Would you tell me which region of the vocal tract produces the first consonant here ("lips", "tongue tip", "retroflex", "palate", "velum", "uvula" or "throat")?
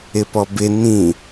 lips